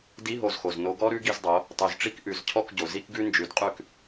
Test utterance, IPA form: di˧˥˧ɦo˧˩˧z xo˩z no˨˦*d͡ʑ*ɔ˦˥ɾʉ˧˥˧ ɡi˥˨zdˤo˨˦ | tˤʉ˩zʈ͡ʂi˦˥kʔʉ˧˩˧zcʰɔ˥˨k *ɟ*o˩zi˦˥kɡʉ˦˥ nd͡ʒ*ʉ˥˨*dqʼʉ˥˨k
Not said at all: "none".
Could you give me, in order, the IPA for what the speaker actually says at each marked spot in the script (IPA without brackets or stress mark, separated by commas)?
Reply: ɡ, ɟ, ʉ˨˦